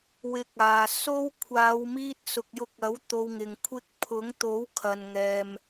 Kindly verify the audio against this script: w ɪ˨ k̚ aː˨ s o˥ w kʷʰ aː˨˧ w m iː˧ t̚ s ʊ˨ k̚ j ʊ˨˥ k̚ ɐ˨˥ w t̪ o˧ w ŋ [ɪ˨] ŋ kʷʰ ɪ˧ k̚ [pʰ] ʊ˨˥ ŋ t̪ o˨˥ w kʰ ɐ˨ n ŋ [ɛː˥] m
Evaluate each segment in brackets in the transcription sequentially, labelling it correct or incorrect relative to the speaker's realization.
correct, correct, incorrect: ɛː˨

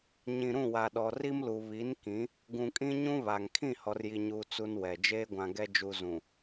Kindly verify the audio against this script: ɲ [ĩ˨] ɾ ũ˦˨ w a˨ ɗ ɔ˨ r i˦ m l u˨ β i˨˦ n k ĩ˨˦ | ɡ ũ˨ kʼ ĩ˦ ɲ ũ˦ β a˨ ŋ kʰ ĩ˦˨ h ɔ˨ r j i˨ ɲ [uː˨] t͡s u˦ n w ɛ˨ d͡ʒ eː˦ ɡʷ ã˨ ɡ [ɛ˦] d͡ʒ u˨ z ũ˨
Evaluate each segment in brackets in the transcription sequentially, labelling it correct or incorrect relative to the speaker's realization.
correct, correct, correct

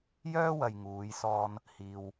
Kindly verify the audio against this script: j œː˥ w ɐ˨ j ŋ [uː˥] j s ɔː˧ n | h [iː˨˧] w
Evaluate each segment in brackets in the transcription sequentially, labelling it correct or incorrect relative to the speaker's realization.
incorrect: uː˨˧, incorrect: iː˨

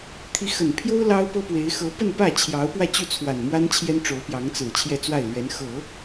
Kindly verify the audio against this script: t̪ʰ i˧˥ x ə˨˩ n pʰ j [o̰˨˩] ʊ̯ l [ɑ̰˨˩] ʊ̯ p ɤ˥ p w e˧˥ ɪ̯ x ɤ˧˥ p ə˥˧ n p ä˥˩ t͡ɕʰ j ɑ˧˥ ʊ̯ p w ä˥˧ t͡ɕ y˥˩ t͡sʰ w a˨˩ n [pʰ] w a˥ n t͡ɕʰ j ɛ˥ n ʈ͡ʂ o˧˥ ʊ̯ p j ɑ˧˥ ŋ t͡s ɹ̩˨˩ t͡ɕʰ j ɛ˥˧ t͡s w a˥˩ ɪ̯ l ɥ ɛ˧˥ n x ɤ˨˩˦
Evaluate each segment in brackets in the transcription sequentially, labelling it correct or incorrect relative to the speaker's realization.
incorrect: o˥, incorrect: ɑ˥, incorrect: m

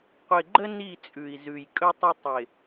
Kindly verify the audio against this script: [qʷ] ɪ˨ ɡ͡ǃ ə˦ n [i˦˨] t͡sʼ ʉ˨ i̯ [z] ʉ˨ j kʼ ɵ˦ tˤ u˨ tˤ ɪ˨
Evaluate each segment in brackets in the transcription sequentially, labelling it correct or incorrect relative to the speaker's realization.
correct, correct, correct

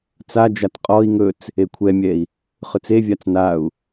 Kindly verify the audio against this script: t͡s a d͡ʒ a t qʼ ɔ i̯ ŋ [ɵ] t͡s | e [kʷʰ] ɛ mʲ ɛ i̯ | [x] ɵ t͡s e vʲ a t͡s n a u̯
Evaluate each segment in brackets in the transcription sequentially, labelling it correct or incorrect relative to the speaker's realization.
correct, correct, incorrect: χ

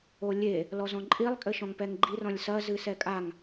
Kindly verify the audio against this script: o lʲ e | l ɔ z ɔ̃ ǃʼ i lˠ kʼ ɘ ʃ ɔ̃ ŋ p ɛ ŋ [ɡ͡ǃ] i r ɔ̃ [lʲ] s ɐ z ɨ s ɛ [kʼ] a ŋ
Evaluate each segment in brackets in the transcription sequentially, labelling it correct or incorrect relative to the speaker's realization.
correct, correct, correct

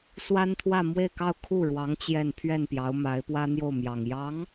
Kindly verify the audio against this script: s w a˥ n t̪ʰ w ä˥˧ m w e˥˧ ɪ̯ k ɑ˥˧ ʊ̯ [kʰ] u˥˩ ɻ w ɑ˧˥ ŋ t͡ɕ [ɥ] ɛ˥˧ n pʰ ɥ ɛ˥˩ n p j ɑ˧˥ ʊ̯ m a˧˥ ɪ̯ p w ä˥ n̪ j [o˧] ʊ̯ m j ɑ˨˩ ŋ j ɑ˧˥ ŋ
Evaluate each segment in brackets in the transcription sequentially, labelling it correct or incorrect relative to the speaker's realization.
correct, incorrect: j, incorrect: o˥˩

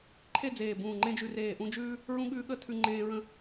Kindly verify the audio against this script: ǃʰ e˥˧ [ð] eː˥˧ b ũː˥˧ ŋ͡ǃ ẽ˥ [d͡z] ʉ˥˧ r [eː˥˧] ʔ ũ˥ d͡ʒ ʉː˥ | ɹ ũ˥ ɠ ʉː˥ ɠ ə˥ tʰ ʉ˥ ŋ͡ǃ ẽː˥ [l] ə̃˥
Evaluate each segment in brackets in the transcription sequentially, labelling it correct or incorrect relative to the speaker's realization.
incorrect: d͡z, incorrect: d͡ʒ, correct, incorrect: ɹ

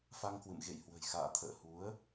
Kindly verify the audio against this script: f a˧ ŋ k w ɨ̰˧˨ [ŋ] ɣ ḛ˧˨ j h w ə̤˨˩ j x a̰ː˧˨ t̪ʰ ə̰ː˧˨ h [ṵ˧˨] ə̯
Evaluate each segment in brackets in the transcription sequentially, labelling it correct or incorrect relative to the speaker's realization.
incorrect: m, incorrect: u˨˦

